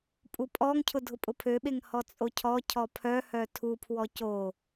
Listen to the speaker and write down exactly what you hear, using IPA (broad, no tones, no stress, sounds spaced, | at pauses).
pʼ u pʼ ɔ ŋ cʰ ʊ dʱ ʊ pʼ ʊ pʰ ø ɓ e ŋ h ɔ t͡sʼ o cʰ ɔ cʰ ɔ pʰ œ h œ tʰ u pʰ w ɔ c o